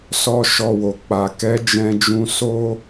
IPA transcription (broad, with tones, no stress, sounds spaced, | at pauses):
s ɔ˦ ʃ ɔ˧ w o˨ k͡p a˨ k ɛ˨˦ d͡ʒ ɛ̃˧ d͡ʒ ũ˧ s o˦